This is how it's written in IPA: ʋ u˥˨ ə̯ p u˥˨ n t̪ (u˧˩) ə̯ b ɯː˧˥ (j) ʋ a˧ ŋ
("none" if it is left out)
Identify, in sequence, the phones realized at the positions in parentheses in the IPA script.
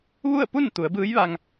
u˩˧, j

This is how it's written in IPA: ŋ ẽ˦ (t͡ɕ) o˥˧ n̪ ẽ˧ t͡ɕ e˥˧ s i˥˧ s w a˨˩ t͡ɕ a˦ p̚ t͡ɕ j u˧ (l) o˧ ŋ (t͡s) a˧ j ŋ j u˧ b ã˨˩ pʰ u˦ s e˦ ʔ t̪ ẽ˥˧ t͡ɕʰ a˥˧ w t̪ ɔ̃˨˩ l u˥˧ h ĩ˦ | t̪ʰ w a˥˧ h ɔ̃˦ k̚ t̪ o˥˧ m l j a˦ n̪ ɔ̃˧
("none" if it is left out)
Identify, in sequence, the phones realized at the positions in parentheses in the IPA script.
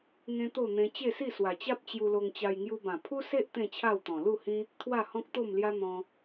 t̪, l, t͡ɕ

